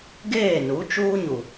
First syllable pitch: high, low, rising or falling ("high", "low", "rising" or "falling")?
falling